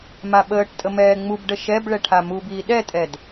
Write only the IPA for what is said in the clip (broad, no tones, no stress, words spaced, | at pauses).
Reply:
maɓəːʈtʼə mɛːŋ͡mubɖə ʃɛbɭɛ ʈʰamubiː ɗɛtʼɛd